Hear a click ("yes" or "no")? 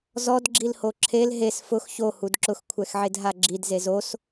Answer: yes